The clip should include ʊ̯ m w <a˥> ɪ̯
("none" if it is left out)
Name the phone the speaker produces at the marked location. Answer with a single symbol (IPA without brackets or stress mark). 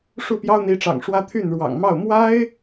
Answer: a˥